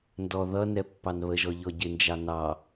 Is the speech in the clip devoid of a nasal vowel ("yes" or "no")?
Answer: yes